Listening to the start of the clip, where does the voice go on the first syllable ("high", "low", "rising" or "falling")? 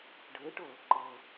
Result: rising